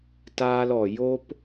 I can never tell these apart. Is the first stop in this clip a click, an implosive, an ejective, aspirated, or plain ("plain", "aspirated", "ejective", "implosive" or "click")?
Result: plain